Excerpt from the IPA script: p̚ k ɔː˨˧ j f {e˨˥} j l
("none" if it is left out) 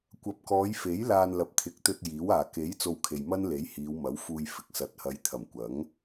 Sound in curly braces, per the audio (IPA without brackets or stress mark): e˨˥